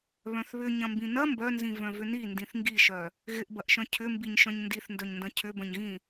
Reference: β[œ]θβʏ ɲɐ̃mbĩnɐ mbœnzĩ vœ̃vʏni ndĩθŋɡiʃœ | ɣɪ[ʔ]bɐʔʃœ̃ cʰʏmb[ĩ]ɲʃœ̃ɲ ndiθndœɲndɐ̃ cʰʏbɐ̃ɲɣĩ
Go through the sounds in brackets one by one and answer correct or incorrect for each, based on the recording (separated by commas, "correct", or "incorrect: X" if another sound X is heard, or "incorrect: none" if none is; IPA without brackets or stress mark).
incorrect: œ̃, correct, incorrect: i